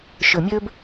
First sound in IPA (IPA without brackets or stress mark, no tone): ʃ